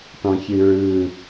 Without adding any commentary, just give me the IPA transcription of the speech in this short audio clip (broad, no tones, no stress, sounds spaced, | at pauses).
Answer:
t ɔ̃ ç ɨ ɹ ɯ